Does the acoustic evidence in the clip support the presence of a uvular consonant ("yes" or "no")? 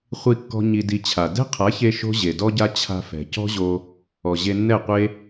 yes